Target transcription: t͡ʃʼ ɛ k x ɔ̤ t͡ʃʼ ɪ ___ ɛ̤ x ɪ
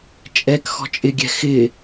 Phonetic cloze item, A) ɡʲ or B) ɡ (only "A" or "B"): A